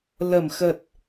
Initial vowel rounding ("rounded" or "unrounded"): unrounded